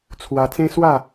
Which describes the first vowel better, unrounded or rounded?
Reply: unrounded